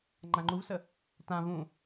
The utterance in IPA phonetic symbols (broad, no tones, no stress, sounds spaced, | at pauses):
ŋ͡ǃ ã ŋ͡ǃ u v s ə | t ã v ũ